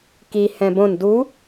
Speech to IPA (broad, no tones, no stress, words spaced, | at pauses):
ki hɛ̃bõn du